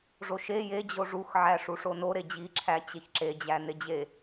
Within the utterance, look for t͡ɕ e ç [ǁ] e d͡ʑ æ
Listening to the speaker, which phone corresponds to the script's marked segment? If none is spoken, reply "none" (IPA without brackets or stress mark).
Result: ǁ